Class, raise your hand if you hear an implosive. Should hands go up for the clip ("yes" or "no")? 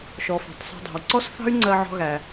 no